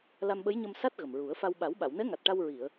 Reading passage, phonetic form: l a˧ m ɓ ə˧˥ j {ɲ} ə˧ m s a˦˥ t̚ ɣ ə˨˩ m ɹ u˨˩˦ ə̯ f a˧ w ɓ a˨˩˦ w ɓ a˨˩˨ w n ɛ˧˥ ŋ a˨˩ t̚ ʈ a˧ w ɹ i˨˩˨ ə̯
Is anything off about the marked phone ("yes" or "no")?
no